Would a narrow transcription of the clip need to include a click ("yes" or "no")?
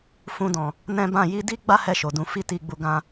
no